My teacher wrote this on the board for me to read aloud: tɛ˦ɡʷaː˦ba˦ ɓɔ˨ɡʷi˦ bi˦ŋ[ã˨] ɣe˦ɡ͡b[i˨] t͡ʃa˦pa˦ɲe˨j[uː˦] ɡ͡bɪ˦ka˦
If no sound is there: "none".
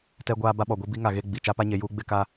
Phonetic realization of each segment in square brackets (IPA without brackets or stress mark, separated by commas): a˨, i˨, uː˦